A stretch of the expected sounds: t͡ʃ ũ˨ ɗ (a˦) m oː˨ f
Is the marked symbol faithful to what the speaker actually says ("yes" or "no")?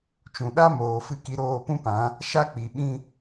yes